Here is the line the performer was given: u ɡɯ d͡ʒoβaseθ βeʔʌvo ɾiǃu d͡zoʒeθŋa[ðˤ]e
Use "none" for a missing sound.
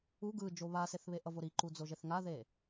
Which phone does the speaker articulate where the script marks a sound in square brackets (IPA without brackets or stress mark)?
ð